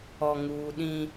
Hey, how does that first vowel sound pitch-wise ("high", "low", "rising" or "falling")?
high